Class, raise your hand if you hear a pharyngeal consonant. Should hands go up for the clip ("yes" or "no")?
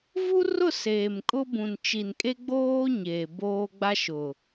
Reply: no